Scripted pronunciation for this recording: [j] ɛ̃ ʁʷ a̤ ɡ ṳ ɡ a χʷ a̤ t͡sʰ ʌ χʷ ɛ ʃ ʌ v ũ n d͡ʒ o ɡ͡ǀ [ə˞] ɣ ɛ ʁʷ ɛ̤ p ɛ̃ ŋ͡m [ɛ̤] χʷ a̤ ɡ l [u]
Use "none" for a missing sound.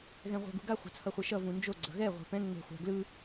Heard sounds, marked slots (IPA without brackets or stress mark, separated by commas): ɣ, ʌ, e̤, ɯ